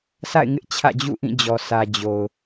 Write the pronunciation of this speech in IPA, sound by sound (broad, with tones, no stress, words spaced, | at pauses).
sa̰˦˨ɪ̯ŋɪ˦ʔ t͡ɕʰä̰˦˨d͡ʑṵ˦˨ʔĩ˦˨d͡ʑɔ˨ sʰä˨d͡ʑo˨ʊ̯